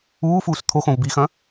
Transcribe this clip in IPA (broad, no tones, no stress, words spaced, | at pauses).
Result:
uːfuːs t̪ʰoxõv bixɐ̃